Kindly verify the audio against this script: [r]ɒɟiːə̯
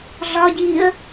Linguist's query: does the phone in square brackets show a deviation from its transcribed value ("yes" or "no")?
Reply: yes